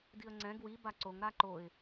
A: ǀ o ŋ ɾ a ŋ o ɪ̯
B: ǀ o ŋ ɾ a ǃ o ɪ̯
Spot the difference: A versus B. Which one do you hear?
B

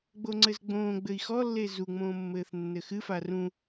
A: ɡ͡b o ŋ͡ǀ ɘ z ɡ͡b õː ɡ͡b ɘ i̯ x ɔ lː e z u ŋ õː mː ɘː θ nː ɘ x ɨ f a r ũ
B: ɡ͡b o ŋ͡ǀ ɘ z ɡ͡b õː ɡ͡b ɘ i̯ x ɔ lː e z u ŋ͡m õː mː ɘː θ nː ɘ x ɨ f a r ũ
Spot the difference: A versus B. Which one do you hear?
B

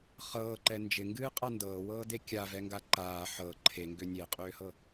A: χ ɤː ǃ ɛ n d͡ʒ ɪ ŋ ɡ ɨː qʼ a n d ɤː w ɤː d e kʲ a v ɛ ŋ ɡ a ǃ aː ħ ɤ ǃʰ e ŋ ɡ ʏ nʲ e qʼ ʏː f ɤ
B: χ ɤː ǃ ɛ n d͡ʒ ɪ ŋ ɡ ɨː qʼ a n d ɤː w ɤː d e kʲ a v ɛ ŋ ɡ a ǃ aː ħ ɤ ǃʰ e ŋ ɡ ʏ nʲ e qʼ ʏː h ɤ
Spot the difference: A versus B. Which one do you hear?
B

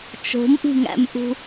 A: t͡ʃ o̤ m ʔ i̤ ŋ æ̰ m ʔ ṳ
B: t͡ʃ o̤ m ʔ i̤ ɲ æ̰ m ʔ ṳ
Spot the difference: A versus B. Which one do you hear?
A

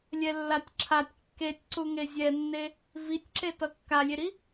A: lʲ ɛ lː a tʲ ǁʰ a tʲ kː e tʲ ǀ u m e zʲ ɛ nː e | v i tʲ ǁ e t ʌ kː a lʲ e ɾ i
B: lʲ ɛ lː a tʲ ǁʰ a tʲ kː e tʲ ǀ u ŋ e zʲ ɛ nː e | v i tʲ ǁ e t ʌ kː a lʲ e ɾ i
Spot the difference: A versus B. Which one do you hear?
B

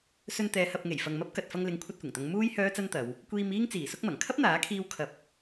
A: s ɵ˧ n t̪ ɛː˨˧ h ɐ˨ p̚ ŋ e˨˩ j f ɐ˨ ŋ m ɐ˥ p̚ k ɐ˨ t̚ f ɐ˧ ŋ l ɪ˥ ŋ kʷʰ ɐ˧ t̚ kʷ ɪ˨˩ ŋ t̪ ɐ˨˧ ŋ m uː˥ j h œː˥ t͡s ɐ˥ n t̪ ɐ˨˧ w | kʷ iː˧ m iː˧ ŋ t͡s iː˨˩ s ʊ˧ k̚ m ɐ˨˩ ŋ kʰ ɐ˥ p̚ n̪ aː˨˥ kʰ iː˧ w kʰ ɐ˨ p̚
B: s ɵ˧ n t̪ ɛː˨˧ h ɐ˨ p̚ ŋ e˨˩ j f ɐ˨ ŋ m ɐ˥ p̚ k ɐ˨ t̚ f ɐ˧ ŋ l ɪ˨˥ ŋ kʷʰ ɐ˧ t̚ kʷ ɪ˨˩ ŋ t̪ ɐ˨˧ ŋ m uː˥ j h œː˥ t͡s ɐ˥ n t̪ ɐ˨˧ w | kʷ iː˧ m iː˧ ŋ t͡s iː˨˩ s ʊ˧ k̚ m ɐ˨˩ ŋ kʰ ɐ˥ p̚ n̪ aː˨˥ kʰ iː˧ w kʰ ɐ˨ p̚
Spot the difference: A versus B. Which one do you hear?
B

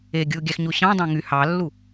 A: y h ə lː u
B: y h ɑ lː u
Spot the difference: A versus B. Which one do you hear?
B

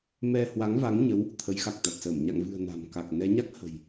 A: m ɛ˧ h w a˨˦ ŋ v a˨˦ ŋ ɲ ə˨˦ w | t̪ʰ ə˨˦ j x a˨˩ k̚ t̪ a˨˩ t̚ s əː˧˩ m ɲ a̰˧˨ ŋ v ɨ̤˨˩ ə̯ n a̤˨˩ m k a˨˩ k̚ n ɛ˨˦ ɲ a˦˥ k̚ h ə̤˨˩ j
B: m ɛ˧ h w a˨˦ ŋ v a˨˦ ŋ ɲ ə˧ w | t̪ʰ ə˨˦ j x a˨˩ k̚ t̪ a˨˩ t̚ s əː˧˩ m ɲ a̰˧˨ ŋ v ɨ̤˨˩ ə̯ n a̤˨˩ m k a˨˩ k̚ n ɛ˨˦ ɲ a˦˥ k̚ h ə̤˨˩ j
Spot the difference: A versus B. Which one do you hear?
A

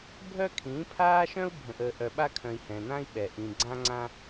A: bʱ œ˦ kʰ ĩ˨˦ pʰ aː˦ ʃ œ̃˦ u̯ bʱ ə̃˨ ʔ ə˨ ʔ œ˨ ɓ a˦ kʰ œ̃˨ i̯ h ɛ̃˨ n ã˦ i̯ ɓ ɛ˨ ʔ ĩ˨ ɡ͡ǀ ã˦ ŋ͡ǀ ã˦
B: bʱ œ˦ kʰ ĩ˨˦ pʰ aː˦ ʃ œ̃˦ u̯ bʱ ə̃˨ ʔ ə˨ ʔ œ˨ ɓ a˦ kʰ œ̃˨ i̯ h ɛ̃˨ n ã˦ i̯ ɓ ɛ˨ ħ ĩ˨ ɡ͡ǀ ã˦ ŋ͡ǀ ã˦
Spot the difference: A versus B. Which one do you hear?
A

